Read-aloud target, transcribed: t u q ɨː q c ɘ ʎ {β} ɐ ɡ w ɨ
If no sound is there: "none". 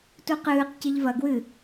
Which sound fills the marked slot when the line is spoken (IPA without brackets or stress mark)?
v